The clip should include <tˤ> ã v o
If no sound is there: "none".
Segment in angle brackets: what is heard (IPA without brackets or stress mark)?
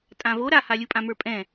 tʼ